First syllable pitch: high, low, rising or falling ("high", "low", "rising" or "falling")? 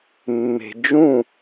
low